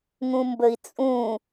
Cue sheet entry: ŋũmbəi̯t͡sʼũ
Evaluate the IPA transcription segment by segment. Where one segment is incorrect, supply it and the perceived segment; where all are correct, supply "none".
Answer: none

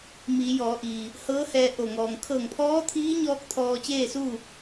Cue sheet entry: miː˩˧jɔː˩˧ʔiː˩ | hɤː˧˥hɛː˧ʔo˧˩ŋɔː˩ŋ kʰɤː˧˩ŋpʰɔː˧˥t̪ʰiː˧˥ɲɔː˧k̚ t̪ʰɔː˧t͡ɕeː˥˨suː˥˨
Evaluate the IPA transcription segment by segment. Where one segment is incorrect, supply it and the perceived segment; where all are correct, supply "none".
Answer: none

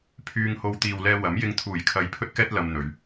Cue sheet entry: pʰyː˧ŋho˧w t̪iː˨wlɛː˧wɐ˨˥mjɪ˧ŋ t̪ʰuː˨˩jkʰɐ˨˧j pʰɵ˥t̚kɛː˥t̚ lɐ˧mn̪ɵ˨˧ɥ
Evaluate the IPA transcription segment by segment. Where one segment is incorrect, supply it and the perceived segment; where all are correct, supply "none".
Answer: none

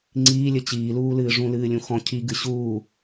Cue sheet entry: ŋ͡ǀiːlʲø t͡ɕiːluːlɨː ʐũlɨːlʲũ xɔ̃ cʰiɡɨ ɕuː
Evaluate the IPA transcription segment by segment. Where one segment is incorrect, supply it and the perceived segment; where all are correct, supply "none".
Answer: ø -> ɘ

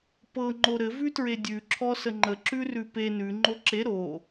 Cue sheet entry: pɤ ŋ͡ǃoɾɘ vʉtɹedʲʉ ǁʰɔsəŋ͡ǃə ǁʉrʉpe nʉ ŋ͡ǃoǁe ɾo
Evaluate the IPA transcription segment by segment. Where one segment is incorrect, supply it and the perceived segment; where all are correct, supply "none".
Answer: none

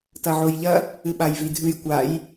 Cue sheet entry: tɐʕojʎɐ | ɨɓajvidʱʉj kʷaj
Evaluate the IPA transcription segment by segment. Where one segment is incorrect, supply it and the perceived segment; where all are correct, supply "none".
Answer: none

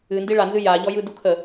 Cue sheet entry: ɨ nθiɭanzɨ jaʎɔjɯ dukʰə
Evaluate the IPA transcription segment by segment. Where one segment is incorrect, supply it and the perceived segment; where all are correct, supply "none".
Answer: θ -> d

